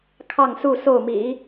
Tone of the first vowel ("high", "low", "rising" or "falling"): falling